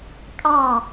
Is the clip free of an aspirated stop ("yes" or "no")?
yes